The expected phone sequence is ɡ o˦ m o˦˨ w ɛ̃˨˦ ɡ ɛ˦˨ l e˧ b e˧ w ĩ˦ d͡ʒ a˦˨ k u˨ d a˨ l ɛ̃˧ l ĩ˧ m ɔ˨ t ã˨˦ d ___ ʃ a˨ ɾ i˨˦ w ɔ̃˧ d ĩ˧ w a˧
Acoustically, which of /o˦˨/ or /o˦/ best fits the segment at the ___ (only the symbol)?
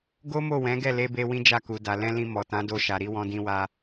o˦˨